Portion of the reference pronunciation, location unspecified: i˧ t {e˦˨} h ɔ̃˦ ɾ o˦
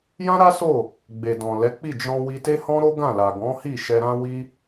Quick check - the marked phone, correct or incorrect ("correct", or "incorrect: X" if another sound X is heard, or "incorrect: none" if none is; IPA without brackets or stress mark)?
incorrect: e˦